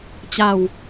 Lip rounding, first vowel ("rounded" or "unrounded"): unrounded